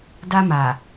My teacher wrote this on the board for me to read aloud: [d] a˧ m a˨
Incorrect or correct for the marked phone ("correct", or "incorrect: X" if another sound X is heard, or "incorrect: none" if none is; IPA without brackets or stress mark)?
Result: correct